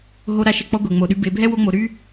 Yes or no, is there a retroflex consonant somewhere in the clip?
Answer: no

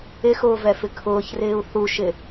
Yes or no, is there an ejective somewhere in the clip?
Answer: no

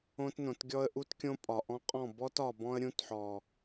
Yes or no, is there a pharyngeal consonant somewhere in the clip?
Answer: yes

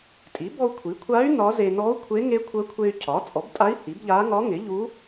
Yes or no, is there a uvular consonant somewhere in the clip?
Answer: no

